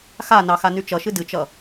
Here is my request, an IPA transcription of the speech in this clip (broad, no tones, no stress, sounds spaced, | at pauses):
x a n ɑ x a n y t͡ʃ ʌ ʃ ɨ d ɨ t͡ʃ ʌ